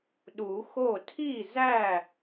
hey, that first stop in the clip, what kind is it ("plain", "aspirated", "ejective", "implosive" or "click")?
implosive